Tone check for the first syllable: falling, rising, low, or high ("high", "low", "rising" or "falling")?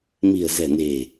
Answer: low